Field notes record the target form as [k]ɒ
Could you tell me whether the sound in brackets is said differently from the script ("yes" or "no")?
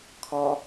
yes